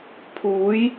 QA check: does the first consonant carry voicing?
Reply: no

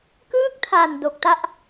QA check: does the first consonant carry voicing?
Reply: no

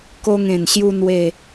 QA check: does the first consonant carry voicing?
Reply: no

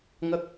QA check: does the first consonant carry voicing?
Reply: yes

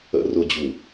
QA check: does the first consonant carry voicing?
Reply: yes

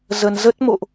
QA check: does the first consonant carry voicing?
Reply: yes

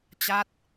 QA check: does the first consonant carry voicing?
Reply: no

